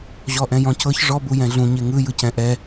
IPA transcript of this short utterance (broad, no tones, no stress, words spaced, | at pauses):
ʑɔʔɛ̃jɔ̃cɤç ʐɔ bujɛ̃ɮũ ɲeŋɯ jɯcɛ̃ʔɛ